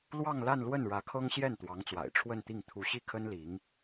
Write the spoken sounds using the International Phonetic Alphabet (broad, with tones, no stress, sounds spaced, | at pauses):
l w ɑ˥˧ ŋ l a˥˧ n l w ə˥˩ n ɻ ä˧˥ kʰ ɤ˥ ŋ ɕ j ɛ˥˩ n t̪ w ɑ˧˥ ŋ t͡s w a̰˨˩ ɪ̯ ʈ͡ʂʰ w ə˥˧ n t̪ i˥˩ ŋ t̪ʰ u˧˥ ɕ i˥˩ kʰ ə˥ n l i˧˥ ŋ